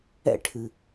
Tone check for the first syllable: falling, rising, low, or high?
falling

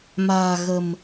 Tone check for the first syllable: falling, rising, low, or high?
low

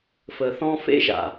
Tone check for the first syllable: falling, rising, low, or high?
low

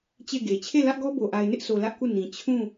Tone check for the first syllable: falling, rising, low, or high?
falling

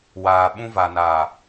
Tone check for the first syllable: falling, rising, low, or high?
low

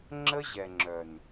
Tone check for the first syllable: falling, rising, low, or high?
high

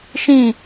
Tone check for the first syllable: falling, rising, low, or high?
falling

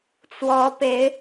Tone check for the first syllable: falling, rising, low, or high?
rising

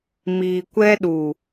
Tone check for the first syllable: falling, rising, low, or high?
low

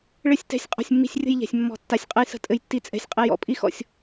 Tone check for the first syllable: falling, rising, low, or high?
falling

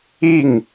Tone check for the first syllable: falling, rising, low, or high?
falling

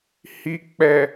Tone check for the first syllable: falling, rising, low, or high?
low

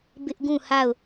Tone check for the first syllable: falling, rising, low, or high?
high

